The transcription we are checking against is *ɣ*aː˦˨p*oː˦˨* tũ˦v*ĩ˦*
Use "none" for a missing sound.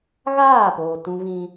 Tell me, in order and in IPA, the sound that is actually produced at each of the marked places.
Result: ɣ, oː˨, ĩ˦

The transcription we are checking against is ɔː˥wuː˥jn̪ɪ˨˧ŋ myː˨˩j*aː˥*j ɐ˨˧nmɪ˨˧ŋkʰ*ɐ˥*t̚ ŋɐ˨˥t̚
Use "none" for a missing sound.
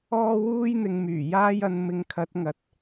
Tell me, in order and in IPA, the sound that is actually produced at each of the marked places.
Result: aː˥, ɐ˨˥

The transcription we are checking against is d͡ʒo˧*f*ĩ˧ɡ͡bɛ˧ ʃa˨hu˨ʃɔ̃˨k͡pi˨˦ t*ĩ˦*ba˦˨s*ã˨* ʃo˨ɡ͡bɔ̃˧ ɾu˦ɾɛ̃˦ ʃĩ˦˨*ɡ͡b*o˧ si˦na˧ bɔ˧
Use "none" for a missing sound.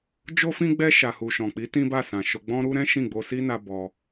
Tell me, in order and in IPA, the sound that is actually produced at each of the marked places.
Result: f, ĩ˦, ã˨, ɡ͡b

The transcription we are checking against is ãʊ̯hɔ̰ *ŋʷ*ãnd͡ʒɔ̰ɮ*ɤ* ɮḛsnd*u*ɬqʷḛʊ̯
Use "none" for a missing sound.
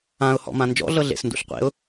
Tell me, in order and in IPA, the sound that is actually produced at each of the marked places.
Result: m, ɤ, ṵ

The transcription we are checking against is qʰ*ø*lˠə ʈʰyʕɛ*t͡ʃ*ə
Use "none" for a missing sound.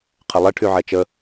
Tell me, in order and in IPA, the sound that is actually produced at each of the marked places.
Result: ə, t͡ʃ

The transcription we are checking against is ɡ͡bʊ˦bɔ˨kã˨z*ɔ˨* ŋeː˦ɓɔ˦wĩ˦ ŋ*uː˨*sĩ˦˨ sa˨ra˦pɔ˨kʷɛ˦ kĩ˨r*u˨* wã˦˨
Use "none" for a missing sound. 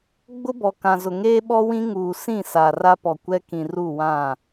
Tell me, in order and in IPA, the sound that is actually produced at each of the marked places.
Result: ʊ˨, uː˨, u˦˨

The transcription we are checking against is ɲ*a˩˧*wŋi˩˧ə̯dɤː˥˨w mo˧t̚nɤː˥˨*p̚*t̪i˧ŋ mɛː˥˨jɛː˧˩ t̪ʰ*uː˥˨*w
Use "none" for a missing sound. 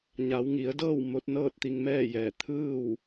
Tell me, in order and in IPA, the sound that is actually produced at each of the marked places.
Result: a˩˧, t̚, ɯː˥˨

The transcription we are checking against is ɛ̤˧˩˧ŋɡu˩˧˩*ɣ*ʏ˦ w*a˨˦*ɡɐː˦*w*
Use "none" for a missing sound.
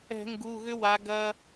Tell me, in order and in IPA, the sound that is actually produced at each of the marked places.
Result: ɣ, a˨˦, none

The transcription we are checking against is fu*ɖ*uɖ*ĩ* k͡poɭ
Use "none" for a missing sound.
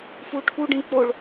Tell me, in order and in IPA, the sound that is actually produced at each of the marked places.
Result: ʈʰ, ĩ

